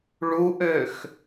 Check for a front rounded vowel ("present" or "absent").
present